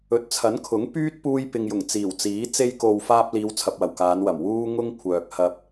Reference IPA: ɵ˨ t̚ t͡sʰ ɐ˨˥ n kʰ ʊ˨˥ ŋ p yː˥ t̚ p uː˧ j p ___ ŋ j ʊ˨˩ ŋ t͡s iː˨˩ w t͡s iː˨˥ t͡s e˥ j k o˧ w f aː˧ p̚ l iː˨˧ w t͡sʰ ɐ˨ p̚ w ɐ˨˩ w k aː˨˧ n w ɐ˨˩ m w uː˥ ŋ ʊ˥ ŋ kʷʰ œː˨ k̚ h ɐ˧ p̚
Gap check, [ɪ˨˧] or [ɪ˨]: ɪ˨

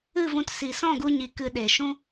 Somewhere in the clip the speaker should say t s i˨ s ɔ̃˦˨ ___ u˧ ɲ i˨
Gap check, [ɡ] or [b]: ɡ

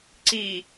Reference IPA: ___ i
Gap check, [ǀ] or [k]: ǀ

